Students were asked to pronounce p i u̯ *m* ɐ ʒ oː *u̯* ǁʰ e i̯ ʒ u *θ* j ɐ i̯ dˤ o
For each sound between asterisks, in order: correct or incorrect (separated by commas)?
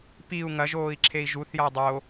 incorrect, incorrect, correct